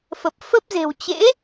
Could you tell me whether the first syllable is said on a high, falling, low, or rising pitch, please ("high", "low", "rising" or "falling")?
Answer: low